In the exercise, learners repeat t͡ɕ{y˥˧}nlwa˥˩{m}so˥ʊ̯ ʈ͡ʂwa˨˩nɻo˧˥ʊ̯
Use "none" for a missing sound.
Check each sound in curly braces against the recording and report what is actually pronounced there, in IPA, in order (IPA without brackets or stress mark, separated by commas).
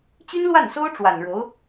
y˥, n